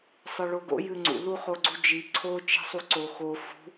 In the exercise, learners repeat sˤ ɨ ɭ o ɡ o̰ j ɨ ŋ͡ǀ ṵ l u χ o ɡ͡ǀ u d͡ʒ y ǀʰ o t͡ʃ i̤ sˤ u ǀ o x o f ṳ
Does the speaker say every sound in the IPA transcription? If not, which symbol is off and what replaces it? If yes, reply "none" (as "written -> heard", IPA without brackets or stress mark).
y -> i